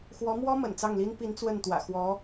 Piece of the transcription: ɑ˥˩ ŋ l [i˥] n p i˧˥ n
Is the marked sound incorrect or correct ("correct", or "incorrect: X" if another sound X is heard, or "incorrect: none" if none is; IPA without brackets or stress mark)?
correct